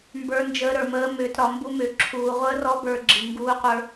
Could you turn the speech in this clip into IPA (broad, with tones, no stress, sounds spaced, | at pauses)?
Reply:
m b ə˞˦˥ n d͡ʒ əː˦˥ ɾ ə˞˧ m əː˦˥ m ʏː˧ t ɾ ɒ˧ m b u˦˥ m ʏː˧ ǁʰ uː˧ ʁʷ əː˦˥ r ɔ˦˥ b ə˞˧ ɡ͡ǁ i˧ ŋ ɡ uː˦˥ qʷ ə˞˦˥